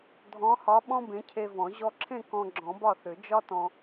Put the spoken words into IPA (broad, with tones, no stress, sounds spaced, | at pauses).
dʱ ɔ̃˨˥ h ɒ˨˥ ɓ ɔ̃˥ b ẽ˨˥ cʰ e˧ v ɔ̃˨˩˦ ʑ ɔ˧ ǁʰ ẽ˥˨ k ɔ̃˧ ɡ͡ǁ ɔ̃˨˩˦ b ɒ˥˨ θ ʏ˨˩˦ d͡ʒ ɒ˥ t ɔ̃˧